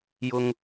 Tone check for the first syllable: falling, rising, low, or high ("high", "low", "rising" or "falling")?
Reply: high